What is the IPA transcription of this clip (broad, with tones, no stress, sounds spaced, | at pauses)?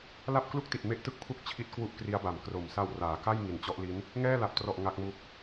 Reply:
l a˥˩ p̚ k l u˥˩ k̚ t i˨˩ t̚ m e˦˥ ʔ t ɯ˥˩ k̚ pʰ u˥˩ k̚ t͡ɕʰ i˥˩ t̚ k w u˥˩ ʔ k r i˦˥ a̯ b a˨˩ m k r o˩˦ m s a˧ w r aː˩˦ k a˥˩ j ŋ i˨˩ n t͡ɕ ɔ˦˥ ʔ l i˦˥ n | ŋ ɛː˥˩ l a˨˩ p̚ t r ɔ˨˩ ʔ ŋ a˦˥ k̚ m u˦˥ k̚